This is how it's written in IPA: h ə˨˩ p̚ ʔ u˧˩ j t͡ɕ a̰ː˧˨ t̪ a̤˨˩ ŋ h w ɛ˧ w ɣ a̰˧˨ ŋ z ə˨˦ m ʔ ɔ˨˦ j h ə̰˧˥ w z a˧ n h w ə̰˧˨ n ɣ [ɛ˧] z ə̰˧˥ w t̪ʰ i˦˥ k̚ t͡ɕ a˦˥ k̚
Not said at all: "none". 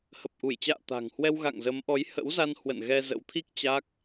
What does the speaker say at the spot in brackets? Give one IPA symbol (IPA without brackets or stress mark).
ɛ˧